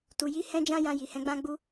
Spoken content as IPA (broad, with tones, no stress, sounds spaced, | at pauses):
t u˨ j i˧ h ɛ̃˦ d͡ʒ ã˦ j ã˧ j i˨ h ɛ̃˨˦ ɡ͡b ã˦ ɡ͡b u˦